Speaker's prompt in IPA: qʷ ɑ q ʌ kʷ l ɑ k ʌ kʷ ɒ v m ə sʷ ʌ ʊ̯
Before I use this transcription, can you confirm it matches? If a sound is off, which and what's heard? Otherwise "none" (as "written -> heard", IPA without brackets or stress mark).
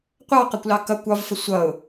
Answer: m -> f